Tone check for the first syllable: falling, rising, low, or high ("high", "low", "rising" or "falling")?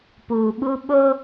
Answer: low